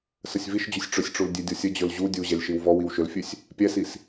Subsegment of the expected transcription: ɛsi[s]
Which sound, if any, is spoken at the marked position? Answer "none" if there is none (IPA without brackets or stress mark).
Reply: s